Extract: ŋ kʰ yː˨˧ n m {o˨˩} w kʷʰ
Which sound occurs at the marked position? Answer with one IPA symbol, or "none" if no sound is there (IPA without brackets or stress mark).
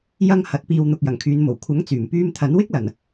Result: o˨˩